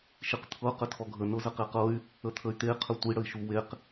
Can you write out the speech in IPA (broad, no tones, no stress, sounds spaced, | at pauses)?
ʃ i q t̪ʰ ɤ q ə tʰ ɔ ɡʱ ə n ɤ z ə q e q ɤ y̯ | ə t̪ʰ ə y̯ t̪ e qʰ ə tʷ i ɽ ə i̯ ʃ u w e q